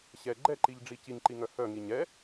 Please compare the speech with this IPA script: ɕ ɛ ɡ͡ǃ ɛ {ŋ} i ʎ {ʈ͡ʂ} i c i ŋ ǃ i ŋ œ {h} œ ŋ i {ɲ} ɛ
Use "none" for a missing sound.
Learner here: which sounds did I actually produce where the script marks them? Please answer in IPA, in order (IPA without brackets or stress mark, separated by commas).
ǃ, ɖ͡ʐ, h, ɲ